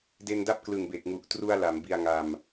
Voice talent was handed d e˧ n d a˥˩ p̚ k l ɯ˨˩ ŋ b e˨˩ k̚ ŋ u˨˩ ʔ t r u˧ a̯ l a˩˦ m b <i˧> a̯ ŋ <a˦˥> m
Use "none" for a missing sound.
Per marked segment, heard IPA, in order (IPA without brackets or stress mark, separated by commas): i˧, a˧